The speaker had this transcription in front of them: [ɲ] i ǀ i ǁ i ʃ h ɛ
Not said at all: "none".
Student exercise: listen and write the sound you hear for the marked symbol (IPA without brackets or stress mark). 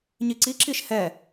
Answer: ɲ